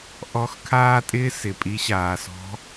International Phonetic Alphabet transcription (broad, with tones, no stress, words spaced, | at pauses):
ʔɔ˧˥xkʰaː˥tʼɪː˥ sɪ˩pʼi˧˥ ɕaː˩sɔ̤˧˥